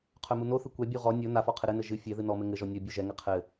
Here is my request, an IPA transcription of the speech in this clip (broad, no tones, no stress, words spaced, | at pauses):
qʰœmunoθɨ kʷɛbʲu ʁɔ nʲo nafɔ qʰɘɾɘnɘ ʒɨ fʲɛ ðɨnɔmɘ ŋɘʒɔ nʲɔ bʲuʒɛŋɘ qʰɘ